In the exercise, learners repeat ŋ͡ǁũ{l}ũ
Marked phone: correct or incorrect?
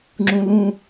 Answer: correct